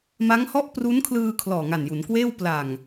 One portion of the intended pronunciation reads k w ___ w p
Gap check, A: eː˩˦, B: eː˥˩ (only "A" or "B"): B